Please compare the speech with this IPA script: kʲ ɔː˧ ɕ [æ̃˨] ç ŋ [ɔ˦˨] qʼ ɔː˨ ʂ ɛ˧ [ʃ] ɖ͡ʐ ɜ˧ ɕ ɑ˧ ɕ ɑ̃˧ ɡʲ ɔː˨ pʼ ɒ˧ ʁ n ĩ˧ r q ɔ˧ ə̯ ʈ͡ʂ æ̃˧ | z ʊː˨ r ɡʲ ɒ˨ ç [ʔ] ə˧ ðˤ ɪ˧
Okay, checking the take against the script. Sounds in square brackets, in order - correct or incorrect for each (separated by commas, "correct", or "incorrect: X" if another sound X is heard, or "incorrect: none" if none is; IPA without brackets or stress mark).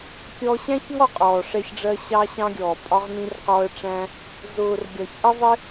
incorrect: æ̃˦, correct, incorrect: ç, correct